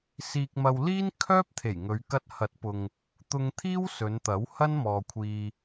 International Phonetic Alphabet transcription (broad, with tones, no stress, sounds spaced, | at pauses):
s iː˧ k̚ m ɐ˧ w l iː˥ n kʰ œː˥ p̚ t̪ʰ e˨˩ j ŋ ɵ˨˧ ɥ k ɐ˧ t̚ h ɐ˨˥ t̚ p ʊ˨ ŋ | t̪ ʊ˧ ŋ t̪ʰ iː˥ w s ɵ˨˧ n t̪ ɐ˨˥ w h ɐ˥ n m ɔː˨ kʷʰ iː˨